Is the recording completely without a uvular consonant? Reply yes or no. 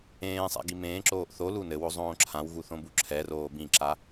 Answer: yes